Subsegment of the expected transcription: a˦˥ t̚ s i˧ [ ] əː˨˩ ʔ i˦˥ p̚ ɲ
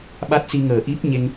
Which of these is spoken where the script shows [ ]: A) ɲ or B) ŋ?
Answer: B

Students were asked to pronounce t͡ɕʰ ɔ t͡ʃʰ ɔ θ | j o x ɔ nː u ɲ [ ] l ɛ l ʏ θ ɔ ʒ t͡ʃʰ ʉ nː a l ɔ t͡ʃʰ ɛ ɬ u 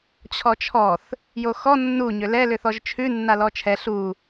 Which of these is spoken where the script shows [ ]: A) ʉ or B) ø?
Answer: B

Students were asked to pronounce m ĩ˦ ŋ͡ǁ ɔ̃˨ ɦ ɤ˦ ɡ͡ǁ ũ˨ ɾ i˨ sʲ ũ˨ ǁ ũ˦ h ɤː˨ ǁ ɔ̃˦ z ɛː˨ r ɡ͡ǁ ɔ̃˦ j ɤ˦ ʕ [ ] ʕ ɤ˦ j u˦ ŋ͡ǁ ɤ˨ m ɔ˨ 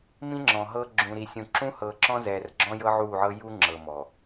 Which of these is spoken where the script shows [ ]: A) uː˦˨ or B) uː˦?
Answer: A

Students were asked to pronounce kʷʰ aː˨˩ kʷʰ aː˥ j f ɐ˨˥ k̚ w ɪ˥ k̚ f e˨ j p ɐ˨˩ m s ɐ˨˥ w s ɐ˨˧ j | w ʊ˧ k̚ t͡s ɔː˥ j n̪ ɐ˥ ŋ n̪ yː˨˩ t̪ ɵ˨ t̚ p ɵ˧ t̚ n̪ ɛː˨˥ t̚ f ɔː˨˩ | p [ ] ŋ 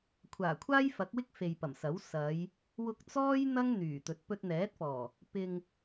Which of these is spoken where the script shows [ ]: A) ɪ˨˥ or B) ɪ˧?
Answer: B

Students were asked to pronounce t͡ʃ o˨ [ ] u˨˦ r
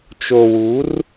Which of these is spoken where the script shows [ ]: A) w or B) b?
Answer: A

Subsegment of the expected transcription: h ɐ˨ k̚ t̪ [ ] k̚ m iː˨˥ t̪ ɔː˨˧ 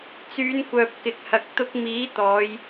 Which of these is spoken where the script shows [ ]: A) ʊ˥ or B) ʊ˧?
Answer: B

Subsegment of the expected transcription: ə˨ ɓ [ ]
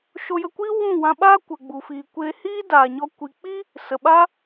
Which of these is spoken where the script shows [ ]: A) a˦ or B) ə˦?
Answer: A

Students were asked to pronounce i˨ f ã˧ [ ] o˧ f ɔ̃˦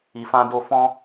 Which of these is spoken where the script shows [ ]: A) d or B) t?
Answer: A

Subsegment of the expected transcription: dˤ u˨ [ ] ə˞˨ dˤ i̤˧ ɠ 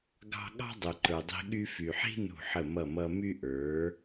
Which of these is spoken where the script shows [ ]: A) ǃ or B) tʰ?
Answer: A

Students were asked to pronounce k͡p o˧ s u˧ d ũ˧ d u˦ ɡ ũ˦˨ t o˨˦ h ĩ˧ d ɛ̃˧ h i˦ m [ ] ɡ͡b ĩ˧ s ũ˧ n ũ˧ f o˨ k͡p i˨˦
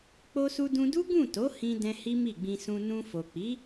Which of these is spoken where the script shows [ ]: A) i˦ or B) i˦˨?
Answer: B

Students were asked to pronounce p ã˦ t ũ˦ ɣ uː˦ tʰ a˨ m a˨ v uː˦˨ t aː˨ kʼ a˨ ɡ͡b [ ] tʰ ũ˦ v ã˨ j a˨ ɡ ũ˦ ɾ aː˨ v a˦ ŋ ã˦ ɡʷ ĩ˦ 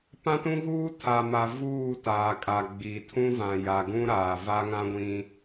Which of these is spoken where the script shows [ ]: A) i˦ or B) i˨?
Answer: B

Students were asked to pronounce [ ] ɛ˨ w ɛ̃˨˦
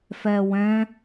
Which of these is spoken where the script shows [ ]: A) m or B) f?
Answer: B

